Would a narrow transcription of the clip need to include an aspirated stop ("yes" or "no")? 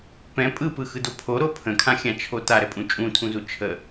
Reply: yes